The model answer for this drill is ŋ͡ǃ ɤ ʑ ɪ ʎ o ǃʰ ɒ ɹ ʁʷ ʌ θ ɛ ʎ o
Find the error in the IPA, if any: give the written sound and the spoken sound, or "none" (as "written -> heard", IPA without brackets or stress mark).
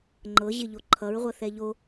ɒ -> ʌ